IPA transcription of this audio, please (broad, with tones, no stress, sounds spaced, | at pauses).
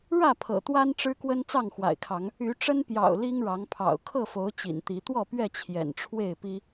ɻ ä˥˨ pʰ ɤ̰˨˩ t̪ w a˦ n ʈ͡ʂ ɻ̩˦ k w ə˦ n t͡s ɑ˥˨ ŋ x w a̰˨˩ ɪ̯ kʰ ɑ˨˦ ŋ | y˨˦ ʈ͡ʂ ə˦ n p j ɑ̰˨˩ ʊ̯ l i˦ ŋ ɻ ɑ˨˦ ŋ pʰ ɑ̰˨˩ ʊ̯ kʰ ɤ˥˨ f o˨˦ ʊ̯ t͡ɕ ḭ˨˩ n t̪ i˨˦ t̪ w ɔ˥˨ p ɥ ɛ˥˨ t͡ɕʰ j ɛ̰˨˩ n ʈ͡ʂʰ w e˥˨ ɪ̯ p i˦